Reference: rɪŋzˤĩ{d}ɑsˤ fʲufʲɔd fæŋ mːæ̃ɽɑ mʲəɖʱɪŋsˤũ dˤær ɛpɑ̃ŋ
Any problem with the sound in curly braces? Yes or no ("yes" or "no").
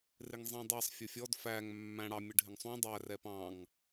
yes